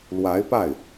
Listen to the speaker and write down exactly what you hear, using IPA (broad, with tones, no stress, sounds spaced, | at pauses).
l w a˧˥ ɪ̯ p a˥˩ ɪ̯